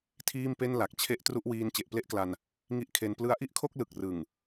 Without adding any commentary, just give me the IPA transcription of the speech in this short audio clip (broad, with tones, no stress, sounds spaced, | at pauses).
tʰ iː˥˩ m p e˥˩ n l a˨˩ k̚ t͡ɕʰ e˥˩ ʔ t r u˥˩ ʔ w iː˦˥ n t͡ɕ e˨˩ ʔ p l e˥˩ ʔ k l a˧ n | ŋ i˦˥ ʔ kʰ e˧ n p l ɯ˧ a̯ ʔ i˥˩ ʔ kʰ o˥˩ k̚ l ɯ˨˩ k̚ r ɯ˨˩ ŋ